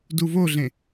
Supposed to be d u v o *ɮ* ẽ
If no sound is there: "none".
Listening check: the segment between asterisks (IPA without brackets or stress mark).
ɮ